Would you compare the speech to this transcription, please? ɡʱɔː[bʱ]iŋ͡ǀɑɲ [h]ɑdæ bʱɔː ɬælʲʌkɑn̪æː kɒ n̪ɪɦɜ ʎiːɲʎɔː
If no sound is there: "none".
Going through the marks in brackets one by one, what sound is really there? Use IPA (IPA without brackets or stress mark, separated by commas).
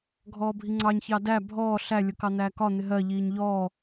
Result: bʱ, ç